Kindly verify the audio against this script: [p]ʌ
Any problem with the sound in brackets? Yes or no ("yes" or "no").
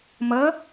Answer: yes